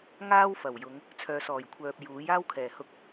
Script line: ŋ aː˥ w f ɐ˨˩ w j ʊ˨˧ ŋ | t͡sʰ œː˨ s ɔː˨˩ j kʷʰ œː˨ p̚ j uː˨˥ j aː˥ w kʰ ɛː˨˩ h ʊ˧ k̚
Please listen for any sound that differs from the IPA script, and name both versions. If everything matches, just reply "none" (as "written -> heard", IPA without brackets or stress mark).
none